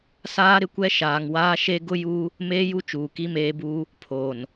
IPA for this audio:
saː˦ɾɪ˦kʷɛ˦ ʃaː˨ŋwaː˦ʃe˦ ɡʊ˦juː˦ | meː˦ju˦t͡ʃuː˨ ki˦meː˦buː˦ | pʰoː˨n

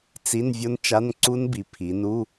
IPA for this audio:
t͡si˧˥˧n vʲo˦˥nt͡ʃa˧˥˧nǀu˦˥nbi˩˧ pʰi˩˧nu˧˥˧

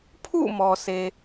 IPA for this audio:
pʰṵ˦˨ mɔ˨sʰe˨

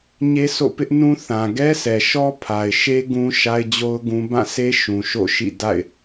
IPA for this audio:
ɲe˦so̰˦˨pɪ˦ʔnũ˦ θã˨ɡɛ˦sʰɛ˨ʃɔ˦ pʰa˨ɪ̯ʃe˦ ɡũ˦ʃa˦ɪ̯d͡ʑo˦ʊ̯ ɡũ˦ bã˦˨se˦ ʃũ˨ʃo̰˦˨ʃḭ˦˨ da̰˦˨ɪ̯

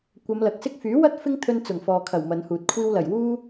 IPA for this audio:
kʷɐ˨˧mlɐ˨k̚sɪ˥k̚ fyː˨˥ wɐ˥t̚ fɪ˥ŋt̪ʰɵ˧n t͡sʊ˨˩ŋfɔː˨kʰɐ˨˩w mɐ˨˧nhuː˨t̚ kʷʰiː˧wlɐ˨˩j wuː˥

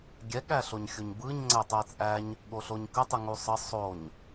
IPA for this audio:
ɡʲɛ ɠæɬoɲxʲuɲbɯɲ ŋ͡ǀɛtˤæt͡sʼæɲ | ɠoɬoɲkə tˤɯŋusˤə sˤoɲ

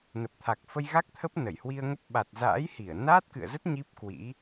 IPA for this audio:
nə˨˩p̚t̪ʰa˨˩k̚fə˧j ɣa˦˥k̚t̪ʰə˦˥p̚ nə˧˩jhwi˧ə̯ŋə˦˥p̚ ɓa˨˩t̚za̰ː˧˥j hi˧˩ə̯ naː˦˥t̚kɨ̰˧˨ə̯zə˦˥t̚ ɲi˦˥p̚kwḭ˧˥

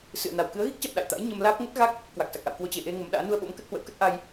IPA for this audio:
sɨ̰˧˨ə̯na˨˩w kɨ˨˦ə̯ɣi˦˥k̚t͡ɕa̰˧˨m ɗa̰˧˨jt̪a̰˧˥j ɲə˧mlaː˦˥p̚ ŋə˦˥t̚ɣa˦˥k̚ | kwa˨˩k̚sa˨˩k̚ʔa̰˧˨w kwo˧t͡ɕe˨˩ʔe˧ ŋə˨˦mɗa̰ː˧˥ nu˧ə̯ɓo̰˧˥mkə˦˥t̚ hwə̰˧˥wkə˦˥t̚ʔa˧j

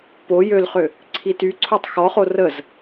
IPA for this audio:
po jølχø | ǀʰityǀʰotˤ xɔχo rəz

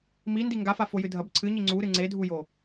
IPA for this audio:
mi ndiŋɡafa fojɨdʱɐb ǀʰɨɲi ŋ͡ǀuɾɨ ŋ͡ǀedʱujo

